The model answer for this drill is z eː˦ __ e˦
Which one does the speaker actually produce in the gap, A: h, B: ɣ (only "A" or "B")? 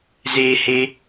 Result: A